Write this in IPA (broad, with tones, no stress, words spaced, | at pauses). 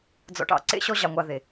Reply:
d͡zɔ̰˧ʈɑ̰˧ǀḛ˦ ɕɔ˦ʑɑ˧ŋʷɑ˧ ðe˨